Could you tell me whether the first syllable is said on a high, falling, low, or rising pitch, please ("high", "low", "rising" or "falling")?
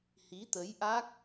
rising